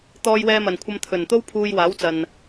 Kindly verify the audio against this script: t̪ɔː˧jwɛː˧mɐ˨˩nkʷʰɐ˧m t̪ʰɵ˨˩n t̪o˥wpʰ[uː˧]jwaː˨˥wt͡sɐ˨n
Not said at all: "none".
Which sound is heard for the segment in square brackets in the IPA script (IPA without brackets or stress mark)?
uː˧